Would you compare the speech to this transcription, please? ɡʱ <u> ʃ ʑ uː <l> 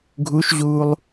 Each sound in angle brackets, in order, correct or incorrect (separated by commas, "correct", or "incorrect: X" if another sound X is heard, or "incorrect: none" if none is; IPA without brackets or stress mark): correct, incorrect: lˠ